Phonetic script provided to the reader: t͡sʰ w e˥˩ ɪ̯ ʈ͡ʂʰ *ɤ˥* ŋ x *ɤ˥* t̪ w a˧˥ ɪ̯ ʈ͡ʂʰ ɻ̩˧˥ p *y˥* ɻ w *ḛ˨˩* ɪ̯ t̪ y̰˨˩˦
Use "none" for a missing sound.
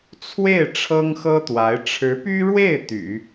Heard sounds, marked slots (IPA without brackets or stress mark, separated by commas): ɤ˥, ɤ˥, y˥, e˥˩